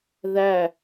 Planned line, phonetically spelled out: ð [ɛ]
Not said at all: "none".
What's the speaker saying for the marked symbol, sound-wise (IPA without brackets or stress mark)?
æ